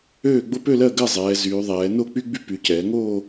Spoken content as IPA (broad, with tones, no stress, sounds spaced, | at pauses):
øː˥˧ ɡ͡b o˥ p ø˥˧ l ɜ˥˧ ɡ ɜ˥˧ zˤ ɛː˩˧ z yː˩˧ ðˤ ɛː˩˧ n o˥˧ k͡p y˥ ɡ͡b y˥ p y˩˧ c ɛː˩˧ ŋ oː˥˧